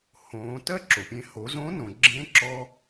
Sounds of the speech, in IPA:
hõː˩˧ tɜ˥ǁo˩pʲẽ˧ ho˩˧zõ˧˥nõ˩ ɡ͡ǁẽ˧˥ǁɔ˧

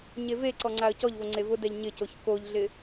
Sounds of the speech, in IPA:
ɲeveǀɔ ŋ͡ǀaə̯cɔʎvo ŋ͡ǀevʊdɛʎ ɲɪcoç koʎɮɪ

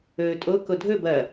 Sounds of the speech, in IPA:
ɵːtʼo kodʱɵ bɐ

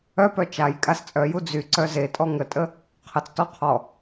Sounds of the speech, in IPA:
œpœ t͡ʃaj kʼast͡sʼœju d͡zyǀœ zetʼɔ ŋətʼə | qʰət͡stɔ qʰɔ

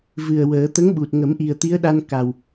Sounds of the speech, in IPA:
vɨ˨˩ə̯ wəː˨˩˦ t̪ə˧˥ŋ ɓu˨˩t̚ŋə˨˩˦m ʔi˨˩ə̯t̪i˧˥ə̯ɗa˧n ka˨˩w

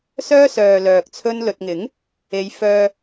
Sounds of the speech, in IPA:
sœː˥sœː˨ lœː˨k̚t͡sʰɵ˥nlɵ˧t̚ ŋɪ˨˥ŋ | e˨˧jfœː˧

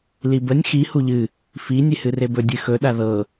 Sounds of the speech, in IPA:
libənʲ xi huʎɨ | fi nʲehɨrebɵ dʲɨxɵ ɗaðɤ

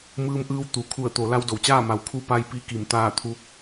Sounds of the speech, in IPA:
mɯː˧mʔɯː˧w t̪u˩ kʰu˧˩ə̯t̪o˩˧ la˧wdo˩wt͡ɕaː˥˨ma˩w kʰu˧˥pa˧jpi˧ ki˧˩mt̪aː˥˨ t̪ʰu˧˥k̚

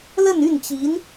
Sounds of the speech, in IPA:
lə˥˧ny˥˩nt͡ɕi˧˥n

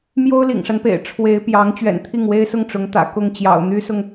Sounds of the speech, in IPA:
mjo˥ʊ̯lḭ˨˩ŋʂa˦npḛ˨˩ɪ̯ ʈ͡ʂʰwe˧˥ɪ̯pjɑ˧˥ŋ t͡ɕɥɛ̰˨˩nt̪ʰi˥˩ŋwe˥ɪ̯sʊ˥˩ŋ ʈ͡ʂʊ˧˥ŋt̪ä̰˨˩ kʊ˥˩ŋt͡ɕjɑ̰˨˩ʊ̯ n̪y˥sʊ˨ŋ

